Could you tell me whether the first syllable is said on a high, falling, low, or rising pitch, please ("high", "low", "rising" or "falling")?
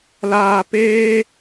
low